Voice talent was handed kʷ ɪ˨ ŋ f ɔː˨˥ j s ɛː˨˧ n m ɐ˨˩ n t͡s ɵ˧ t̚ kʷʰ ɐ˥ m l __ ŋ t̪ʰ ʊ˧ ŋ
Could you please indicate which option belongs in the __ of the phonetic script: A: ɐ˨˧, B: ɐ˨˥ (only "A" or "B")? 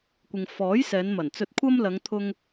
A